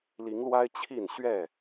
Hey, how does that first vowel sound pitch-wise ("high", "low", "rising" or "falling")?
rising